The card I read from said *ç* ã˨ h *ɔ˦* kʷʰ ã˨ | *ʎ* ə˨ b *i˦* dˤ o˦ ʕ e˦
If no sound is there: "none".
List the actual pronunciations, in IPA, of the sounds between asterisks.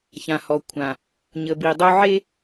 ç, ɔ˨, ɲ, i˨

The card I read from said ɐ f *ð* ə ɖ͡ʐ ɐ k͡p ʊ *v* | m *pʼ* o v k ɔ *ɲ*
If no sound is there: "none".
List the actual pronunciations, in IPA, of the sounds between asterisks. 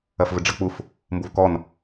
v, f, b, n

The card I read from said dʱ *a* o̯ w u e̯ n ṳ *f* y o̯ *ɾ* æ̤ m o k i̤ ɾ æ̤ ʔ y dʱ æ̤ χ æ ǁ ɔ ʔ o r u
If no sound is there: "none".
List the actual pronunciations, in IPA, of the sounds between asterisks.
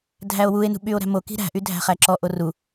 æ, ɓ, ɾ

